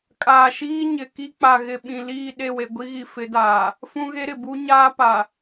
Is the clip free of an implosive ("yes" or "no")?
no